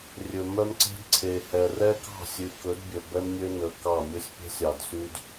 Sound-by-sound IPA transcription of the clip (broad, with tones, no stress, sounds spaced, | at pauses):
rʲ ɵ˨ m œ˦ m ǀ e̤˦ d ǀʰ e˨ h ɛ˨ r ɛ˦ k ɑ̤˦˨ sʲ ʉ˨ k ɵ˨˦ d bʲ ɵ˨ b ɛ˦ m nʲ ø˦ n ɵ˨ k ɑ˦˨ mʲ ɵ˦ sʲ pʲ e̤˦ sʲ ɑ˨ d s y˦ d